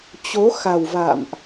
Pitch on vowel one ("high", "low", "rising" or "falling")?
rising